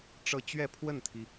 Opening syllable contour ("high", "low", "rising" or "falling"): falling